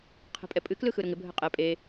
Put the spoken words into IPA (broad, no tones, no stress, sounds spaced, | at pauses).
qʰ ɛ̤ pʼ ɛ pʼ ɨ k l ɯ x ɯ ɾ ʊ ŋ ɪ bʱ ə qʼ ɛ pʼ e